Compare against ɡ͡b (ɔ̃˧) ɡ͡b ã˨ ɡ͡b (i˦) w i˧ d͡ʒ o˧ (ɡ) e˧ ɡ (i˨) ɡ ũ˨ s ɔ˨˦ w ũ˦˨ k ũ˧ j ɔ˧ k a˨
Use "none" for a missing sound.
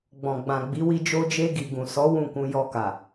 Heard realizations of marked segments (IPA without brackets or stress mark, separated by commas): ɔ̃˨, i˨˦, d͡ʒ, i˨